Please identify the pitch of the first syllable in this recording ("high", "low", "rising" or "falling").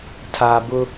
low